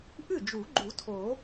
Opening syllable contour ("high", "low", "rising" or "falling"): falling